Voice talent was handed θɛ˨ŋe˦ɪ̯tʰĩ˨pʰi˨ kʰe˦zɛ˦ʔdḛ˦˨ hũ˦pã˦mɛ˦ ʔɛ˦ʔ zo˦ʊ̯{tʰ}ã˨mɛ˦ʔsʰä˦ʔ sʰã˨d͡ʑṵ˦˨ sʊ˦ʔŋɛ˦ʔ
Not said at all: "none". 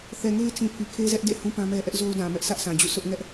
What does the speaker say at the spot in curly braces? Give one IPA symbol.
d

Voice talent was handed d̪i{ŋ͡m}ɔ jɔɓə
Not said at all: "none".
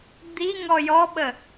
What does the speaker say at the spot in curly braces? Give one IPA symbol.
ŋ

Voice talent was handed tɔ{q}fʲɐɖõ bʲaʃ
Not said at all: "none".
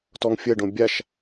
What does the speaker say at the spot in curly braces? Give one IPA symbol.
ŋ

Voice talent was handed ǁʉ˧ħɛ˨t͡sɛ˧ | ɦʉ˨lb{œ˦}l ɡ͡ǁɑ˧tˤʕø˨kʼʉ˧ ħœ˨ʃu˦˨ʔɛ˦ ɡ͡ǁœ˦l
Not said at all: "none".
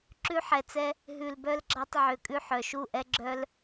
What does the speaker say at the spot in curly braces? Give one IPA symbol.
œ˧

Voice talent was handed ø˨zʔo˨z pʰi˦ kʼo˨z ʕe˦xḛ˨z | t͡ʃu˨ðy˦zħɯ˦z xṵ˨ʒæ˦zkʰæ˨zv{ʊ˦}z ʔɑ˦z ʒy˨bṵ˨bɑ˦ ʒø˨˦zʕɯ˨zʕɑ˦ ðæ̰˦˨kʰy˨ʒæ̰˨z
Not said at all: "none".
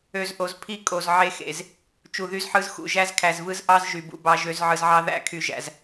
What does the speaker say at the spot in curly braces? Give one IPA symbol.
ɯ˦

